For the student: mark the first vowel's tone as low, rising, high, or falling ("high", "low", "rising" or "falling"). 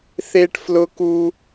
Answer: high